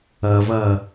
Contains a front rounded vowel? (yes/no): no